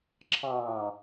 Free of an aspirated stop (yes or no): no